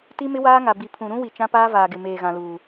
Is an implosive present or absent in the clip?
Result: absent